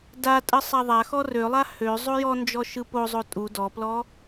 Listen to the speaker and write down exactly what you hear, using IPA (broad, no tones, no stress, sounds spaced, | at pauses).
d a tʼ ə sˤ a ðˤ a x ɔ r ø lˠ a h ø zˤ o j ɔ n d͡ʒ ɔ ʃ ɯ p o zˤ o tʼ u d ɔ p l ɔ